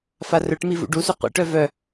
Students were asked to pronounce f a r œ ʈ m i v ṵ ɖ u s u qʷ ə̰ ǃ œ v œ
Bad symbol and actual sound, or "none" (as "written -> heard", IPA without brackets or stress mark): ǃ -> ʈ